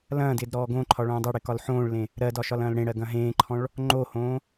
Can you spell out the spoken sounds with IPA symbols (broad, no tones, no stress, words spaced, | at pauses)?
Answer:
lɐ̃ːdɪːd ɾɔːɡõǃʰɒ ɭõːdˤɐɽɪ kɒlħõːɭlẽ | ɾɜdɒ ʃɒlɐ̃ːlɽẽɽɜ ɡɐ̃ɦẽːǃʰɔ̃ɭ | ŋ͡ǃohõː